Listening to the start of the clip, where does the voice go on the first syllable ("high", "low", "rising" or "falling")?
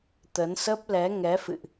rising